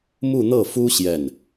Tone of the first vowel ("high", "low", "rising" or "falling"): falling